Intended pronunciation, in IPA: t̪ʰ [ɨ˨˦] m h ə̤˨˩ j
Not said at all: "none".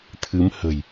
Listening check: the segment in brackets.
ɨ˨˦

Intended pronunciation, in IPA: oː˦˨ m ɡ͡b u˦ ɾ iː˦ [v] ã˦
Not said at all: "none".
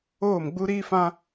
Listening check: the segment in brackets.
f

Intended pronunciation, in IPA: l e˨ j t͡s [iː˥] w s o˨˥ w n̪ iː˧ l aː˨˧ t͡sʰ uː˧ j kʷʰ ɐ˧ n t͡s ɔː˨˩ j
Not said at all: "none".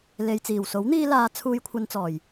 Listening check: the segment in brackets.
iː˨˩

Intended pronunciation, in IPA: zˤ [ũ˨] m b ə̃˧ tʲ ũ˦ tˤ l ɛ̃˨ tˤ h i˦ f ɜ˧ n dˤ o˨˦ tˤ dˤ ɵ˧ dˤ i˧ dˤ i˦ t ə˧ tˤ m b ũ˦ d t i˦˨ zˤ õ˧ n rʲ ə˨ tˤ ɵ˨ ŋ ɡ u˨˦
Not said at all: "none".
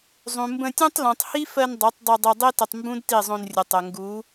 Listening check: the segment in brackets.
ũ˨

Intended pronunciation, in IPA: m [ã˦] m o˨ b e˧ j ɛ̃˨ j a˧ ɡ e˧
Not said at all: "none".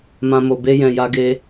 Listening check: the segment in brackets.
ã˧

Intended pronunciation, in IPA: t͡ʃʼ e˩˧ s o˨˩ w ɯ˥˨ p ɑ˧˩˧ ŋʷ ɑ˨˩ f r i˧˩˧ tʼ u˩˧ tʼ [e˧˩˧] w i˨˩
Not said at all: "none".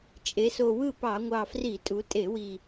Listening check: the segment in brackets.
e˧˩˧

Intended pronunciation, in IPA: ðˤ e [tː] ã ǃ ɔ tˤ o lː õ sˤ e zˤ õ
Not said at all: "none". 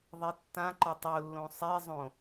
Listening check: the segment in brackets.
tː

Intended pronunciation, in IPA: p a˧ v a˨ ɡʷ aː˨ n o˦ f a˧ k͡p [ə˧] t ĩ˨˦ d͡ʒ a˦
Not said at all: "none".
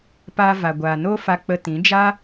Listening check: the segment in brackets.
ə˧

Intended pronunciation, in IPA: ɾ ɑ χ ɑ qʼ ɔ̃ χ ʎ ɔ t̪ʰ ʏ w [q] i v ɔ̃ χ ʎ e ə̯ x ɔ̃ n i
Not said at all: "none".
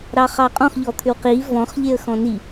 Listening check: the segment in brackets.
q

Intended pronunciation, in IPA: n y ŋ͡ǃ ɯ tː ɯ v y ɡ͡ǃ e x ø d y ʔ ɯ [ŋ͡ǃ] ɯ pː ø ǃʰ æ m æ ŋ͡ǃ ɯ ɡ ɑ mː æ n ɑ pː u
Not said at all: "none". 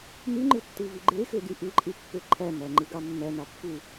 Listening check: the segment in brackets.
ǃʼ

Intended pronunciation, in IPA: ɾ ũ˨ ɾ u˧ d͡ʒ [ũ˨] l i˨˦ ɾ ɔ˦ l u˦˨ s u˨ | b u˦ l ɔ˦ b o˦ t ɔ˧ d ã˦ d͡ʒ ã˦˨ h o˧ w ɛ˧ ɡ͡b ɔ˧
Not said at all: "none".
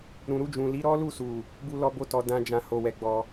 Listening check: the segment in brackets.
ũ˨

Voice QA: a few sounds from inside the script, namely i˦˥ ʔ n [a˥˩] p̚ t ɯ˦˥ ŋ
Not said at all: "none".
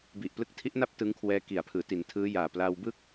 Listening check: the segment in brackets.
a˥˩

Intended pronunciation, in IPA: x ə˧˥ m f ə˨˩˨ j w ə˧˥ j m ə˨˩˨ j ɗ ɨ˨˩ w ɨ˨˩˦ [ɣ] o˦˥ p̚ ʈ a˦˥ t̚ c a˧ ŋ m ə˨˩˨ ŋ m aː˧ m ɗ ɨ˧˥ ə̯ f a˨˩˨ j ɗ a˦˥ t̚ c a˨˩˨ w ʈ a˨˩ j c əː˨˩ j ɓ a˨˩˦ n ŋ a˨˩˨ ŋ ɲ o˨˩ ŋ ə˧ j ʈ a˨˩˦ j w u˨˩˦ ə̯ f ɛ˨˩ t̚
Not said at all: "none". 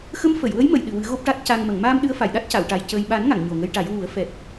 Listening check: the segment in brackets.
ɣ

